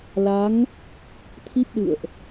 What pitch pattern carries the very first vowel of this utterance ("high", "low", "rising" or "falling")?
rising